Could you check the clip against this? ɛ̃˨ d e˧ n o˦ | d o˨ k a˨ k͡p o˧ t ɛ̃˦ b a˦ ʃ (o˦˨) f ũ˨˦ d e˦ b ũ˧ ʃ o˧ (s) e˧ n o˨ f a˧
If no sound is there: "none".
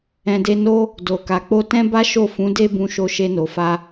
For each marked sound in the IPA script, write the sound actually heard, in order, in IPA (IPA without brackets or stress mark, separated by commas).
o˦˨, ʃ